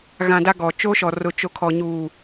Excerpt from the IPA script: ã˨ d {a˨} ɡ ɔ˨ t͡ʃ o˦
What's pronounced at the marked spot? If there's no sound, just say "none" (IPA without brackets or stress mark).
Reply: a˦